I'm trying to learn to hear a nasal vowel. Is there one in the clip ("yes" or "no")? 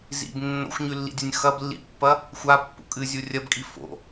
no